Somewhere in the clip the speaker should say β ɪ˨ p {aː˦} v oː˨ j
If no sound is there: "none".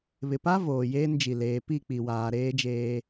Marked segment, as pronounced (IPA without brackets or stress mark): a˦